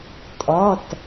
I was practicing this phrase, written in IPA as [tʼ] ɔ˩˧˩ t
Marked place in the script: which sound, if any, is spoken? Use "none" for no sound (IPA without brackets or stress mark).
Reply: tʼ